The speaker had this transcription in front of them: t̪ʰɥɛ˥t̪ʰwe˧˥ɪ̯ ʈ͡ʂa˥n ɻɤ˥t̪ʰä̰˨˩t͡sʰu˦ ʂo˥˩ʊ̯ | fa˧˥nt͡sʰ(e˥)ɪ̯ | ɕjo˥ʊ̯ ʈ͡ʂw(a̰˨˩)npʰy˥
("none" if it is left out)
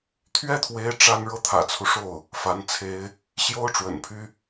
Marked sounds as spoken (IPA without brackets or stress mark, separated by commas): e˥, ə̰˨˩